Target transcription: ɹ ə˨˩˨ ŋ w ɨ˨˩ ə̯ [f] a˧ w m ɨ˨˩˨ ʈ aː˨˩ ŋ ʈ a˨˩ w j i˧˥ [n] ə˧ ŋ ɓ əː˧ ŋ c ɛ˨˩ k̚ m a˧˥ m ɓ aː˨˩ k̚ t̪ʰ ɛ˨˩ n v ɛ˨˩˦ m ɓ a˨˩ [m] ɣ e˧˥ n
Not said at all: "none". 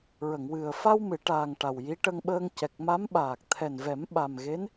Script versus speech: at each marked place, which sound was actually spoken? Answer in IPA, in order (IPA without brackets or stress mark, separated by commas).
f, ʈ, m